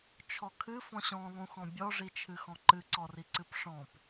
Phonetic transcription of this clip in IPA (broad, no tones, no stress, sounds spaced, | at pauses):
t͡ʃʰ ɔ kʰ ɨ f ɔ̃ ɕ ɔ̃ lˠ ũ x ɔ̃ bʲ ɔ ʐ i t͡ʃʰ ɨ x ɔ̃ ǃ ɨ ǀ ɔ r i ǀ ɨ p ʂ ɔ̃ p